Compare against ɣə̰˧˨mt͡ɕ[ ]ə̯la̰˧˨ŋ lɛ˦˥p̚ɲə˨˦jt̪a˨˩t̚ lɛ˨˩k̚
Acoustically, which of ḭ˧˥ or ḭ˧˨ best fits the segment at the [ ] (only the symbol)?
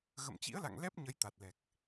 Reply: ḭ˧˥